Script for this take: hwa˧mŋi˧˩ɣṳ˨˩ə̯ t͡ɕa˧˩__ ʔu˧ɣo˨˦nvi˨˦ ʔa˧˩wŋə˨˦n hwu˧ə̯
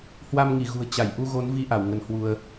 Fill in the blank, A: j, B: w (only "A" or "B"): A